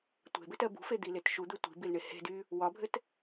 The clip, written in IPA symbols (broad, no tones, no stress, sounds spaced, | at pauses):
tʷ e̤ b ɘ t ɜ b ṳ f e d̪ i l e t ʃ u d̪ ɘ tʷ i̤ b i l ɳ e h e̤ d y | w ɒ bʱ ɘ t